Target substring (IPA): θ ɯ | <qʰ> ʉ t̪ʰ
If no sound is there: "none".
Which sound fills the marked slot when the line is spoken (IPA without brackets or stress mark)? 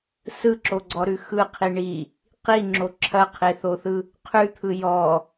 qʰ